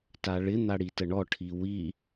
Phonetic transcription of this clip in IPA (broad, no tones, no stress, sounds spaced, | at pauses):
t a ɭ ɪ n̪ a ɽ i t ə ɳ ɔ ʈʰ i w i